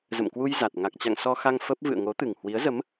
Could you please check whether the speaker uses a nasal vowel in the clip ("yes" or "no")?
no